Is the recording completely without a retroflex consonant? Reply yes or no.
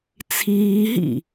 yes